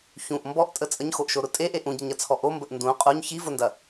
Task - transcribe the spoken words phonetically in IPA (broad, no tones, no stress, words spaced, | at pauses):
çũʔ mbɔʔtʼə t͡sʼəɲxoʔʃoɾʊ tʼeʔe ʔũɟəɲɐt͡sʰɔ ʔombəʔ ndũ qʼuɲ çivʊndɐ